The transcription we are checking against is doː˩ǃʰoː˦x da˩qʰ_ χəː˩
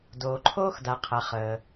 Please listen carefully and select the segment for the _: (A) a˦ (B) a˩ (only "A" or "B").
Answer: B